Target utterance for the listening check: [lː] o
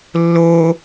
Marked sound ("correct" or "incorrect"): correct